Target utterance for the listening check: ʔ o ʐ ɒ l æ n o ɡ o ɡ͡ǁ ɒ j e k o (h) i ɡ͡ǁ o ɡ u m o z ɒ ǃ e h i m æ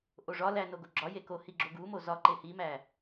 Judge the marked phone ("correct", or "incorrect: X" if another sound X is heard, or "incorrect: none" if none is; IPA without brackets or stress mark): correct